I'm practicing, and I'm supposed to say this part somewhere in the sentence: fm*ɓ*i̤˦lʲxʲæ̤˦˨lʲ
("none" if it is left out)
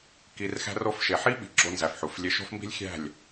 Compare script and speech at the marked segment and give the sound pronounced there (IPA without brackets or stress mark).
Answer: b